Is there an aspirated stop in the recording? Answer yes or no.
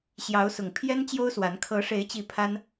yes